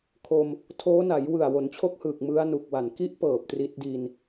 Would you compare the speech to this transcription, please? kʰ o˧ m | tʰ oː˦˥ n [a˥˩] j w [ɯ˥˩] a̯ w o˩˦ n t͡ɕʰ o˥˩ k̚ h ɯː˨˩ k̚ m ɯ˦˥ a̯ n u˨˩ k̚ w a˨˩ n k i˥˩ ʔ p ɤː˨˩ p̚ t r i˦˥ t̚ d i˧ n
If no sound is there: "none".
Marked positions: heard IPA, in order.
a˩˦, ɯ˨˩

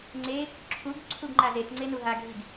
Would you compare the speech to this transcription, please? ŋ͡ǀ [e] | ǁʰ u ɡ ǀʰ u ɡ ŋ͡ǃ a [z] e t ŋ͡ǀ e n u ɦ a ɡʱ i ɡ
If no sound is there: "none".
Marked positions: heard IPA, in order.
e, z

